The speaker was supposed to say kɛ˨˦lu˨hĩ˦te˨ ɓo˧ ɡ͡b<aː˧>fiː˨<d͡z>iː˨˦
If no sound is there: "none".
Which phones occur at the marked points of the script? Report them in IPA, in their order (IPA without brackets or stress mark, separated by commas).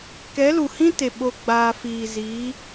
aː˧, z